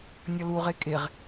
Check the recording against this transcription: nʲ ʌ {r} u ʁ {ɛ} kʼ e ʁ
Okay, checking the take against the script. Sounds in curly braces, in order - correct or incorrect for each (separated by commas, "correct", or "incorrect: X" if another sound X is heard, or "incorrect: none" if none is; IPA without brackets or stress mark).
incorrect: l, incorrect: e